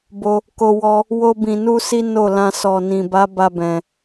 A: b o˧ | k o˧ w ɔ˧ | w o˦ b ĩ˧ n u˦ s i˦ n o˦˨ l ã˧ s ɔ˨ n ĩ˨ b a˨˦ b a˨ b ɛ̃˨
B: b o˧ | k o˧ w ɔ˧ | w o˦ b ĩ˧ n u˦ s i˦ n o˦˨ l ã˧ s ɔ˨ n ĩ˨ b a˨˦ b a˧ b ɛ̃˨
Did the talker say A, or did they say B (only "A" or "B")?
B